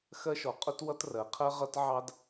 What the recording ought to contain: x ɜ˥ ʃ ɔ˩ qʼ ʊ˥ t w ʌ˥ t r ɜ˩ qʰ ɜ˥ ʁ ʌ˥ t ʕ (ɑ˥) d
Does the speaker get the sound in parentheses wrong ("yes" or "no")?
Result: no